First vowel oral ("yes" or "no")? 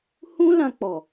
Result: no